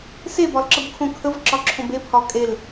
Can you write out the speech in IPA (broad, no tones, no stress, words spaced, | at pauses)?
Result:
sebɒlǁəbkʰõ kʰəvǁɒǁʰõb epʰɒ kʼel